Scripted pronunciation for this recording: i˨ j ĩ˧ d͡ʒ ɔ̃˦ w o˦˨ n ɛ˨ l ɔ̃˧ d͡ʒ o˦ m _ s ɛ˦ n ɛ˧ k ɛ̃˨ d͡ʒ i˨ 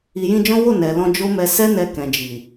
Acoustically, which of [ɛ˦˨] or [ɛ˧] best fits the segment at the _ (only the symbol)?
ɛ˧